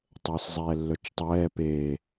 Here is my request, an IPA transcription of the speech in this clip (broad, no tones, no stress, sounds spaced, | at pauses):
tˤ əː s zˤ ɛː lː œ t͡ʃ tˤ ɛː p e